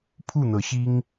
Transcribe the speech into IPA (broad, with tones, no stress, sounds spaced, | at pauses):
pʰ u˥˨ n̪ ɤ˨˦ ɕ i˦ ŋ